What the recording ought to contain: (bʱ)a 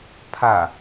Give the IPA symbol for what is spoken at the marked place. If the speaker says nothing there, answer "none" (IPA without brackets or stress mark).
pʰ